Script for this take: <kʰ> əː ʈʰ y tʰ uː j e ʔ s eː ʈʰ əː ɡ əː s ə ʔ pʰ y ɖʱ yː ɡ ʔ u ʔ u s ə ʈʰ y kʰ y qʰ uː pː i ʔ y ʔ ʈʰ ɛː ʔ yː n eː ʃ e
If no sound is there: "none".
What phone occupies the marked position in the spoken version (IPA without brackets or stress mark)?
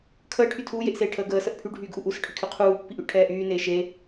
kʰ